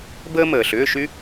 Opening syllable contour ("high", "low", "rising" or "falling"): high